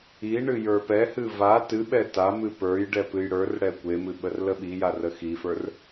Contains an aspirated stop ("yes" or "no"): no